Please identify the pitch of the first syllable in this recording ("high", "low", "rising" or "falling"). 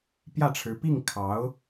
falling